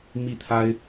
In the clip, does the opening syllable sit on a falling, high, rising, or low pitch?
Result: falling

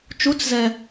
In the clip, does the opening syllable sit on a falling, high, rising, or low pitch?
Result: rising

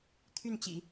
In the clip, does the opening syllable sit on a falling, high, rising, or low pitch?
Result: falling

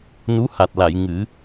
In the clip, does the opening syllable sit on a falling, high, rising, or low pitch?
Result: rising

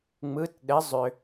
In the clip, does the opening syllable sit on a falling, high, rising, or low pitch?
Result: rising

